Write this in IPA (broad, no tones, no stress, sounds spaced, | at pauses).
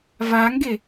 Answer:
v a ŋ ɡ e